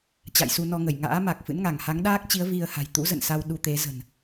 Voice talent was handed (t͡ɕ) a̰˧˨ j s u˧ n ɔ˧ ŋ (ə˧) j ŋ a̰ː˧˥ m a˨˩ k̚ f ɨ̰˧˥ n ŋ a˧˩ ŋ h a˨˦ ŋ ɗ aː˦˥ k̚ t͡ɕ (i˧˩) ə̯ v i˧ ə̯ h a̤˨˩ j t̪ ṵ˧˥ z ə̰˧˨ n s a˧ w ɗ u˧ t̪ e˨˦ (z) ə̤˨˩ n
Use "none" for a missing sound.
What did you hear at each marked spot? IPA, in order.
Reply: t͡ɕ, ə˧˩, i˨˦, z

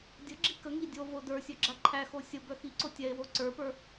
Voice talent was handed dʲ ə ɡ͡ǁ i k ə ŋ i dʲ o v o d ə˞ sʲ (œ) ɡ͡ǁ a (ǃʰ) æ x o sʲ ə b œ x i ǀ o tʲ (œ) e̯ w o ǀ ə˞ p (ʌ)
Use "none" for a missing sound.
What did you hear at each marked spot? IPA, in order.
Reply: œ, ǃʰ, ɛ, ə˞

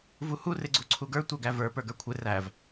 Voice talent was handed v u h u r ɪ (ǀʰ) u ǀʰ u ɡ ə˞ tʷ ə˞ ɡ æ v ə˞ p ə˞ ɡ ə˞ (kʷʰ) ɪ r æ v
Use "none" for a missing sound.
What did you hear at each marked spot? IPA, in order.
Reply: ɡ͡ǀ, kʷʰ

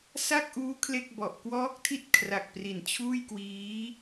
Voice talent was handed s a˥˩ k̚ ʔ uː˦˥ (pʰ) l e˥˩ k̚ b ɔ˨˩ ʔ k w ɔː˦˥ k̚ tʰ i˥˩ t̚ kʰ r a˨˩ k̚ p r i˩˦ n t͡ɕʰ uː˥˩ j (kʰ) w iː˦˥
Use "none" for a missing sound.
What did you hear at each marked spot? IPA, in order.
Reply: kʰ, k

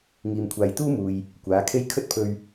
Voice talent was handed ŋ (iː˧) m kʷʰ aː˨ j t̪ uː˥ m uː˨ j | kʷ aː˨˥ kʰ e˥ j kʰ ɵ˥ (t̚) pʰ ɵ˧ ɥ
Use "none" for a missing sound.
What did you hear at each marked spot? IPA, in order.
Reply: iː˨, t̚

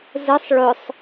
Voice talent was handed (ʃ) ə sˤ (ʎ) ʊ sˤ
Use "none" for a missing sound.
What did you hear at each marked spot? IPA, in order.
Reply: z, ɭ

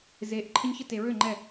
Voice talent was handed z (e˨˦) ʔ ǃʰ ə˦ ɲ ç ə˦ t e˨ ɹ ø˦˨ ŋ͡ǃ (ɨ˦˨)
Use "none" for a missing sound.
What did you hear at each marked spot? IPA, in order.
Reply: e˨˦, ɛ˦˨

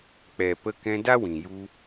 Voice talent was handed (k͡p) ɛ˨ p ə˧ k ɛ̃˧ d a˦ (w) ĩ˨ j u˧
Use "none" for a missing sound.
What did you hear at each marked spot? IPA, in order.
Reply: k͡p, w

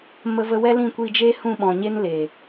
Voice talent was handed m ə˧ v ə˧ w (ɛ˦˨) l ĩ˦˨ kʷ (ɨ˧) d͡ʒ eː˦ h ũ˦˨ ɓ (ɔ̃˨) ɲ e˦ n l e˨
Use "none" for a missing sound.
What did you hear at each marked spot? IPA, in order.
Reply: ɛ˦, i˧, ɔ̃˨

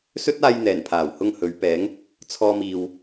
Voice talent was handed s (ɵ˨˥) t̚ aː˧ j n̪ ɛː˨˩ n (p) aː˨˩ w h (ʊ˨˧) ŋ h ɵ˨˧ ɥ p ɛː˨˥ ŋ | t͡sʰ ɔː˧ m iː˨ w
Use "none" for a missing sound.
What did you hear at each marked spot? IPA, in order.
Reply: ɵ˥, pʰ, ʊ˧

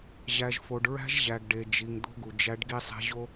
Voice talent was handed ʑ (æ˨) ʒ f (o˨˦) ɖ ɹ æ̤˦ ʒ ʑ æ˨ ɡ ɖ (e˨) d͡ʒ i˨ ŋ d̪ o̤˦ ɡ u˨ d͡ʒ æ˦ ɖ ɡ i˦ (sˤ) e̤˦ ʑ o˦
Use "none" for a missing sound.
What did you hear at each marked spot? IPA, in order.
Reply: æ˨, o˨, e˨, sˤ

